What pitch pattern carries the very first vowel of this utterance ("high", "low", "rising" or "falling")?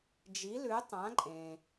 rising